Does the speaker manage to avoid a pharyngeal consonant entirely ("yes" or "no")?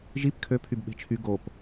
yes